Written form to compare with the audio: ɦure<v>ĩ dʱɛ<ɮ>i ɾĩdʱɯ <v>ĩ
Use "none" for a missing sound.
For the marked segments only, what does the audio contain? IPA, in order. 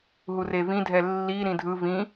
v, lː, v

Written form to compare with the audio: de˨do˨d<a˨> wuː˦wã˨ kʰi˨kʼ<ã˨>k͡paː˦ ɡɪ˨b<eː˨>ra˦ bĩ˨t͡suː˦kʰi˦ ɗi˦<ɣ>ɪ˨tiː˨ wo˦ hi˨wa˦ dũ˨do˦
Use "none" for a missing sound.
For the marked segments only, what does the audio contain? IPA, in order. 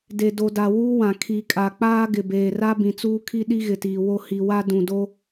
a˨, a˨, eː˨, ɣ

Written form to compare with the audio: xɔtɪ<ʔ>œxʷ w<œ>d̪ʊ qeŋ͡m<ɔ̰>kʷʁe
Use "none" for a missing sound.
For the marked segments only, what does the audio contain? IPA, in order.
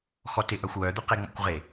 ʔ, œ, ɔ̰

